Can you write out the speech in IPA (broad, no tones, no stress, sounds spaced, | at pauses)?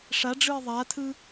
ʂ a ɖ͡ʐ ɯ ɪ̯ ðˤ a tʰ ɯ